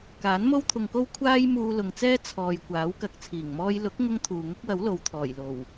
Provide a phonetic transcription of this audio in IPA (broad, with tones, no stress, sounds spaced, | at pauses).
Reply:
k aː˨˥ n m o˥ w t̪ʰ ʊ˧ ŋ k o˥ w kʷʰ aː˥ j m uː˧ l ʊ˨ ŋ t͡s ɛː˥ t͡sʰ ɔː˨ j kʷ aː˨˥ w k ɐ˨˥ k̚ t͡sʰ iː˨˩ ŋ m ɔː˥ j l ʊ˨˥ k̚ ŋ ʊ˥ ŋ t̪ʰ uː˨ ŋ ʊ˥ k̚ w ɐ˨˥ w l o˨ w t̪ʰ ɔː˨˩ j l o˨˩ w